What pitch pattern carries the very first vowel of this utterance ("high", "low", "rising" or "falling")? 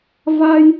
high